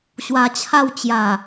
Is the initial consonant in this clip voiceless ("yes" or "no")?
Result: yes